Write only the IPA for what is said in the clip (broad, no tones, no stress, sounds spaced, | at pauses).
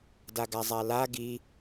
d a ɡ a zˤ a l a ɡ i